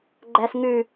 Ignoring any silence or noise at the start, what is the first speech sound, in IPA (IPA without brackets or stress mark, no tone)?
ɡ͡ǃ